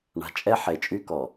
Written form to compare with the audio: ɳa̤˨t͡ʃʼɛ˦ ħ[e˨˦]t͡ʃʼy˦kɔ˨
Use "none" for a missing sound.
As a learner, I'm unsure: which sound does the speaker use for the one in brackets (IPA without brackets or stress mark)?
e˨